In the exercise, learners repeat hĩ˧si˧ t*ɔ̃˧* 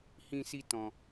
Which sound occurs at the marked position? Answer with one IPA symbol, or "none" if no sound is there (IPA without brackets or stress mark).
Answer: ɔ̃˧